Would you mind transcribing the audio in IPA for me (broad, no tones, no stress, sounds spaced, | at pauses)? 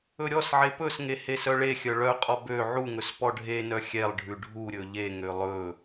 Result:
ɵ ɾʲ ɔ s ʕ e p ɵ s ŋ e h e s œ ɭ e xʲ œ ɭ œ qʼ ɔ b ø ʕ u ŋ ɵ s p ɔ ɖʱ e n œ xʲ ɛ lˠ ɖʱ ʉ ɖʱ u ɾʲ ɵ ʎ e ŋ ø lˠ ɵ